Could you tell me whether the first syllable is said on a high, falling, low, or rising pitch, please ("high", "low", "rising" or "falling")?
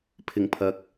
low